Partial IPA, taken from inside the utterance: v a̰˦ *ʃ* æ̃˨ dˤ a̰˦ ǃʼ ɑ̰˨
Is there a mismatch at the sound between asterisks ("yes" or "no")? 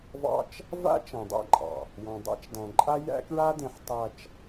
yes